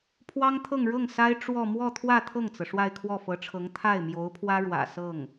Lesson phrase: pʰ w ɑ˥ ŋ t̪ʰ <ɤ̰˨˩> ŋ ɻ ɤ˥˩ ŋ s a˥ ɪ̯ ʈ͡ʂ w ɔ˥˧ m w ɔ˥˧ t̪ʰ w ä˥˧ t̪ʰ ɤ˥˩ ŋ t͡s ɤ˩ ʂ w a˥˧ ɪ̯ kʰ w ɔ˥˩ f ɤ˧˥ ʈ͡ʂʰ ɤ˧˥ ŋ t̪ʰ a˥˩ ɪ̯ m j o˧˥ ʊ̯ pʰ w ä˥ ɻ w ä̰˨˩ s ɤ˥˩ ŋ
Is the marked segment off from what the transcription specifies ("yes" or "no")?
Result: yes